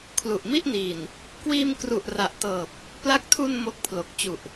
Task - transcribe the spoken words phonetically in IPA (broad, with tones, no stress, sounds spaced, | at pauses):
kʰ l u˨˩ ʔ m i˥˩ ʔ n iː˨˩ n | k w iː˧ m k r u˨˩ ʔ r a˨˩ ʔ t ɤː˨˩ p̚ | p l a˦˥ k̚ tʰ u˧ n m o˦˥ k̚ pʰ l o˨˩ k̚ t͡ɕ u˨˩ ʔ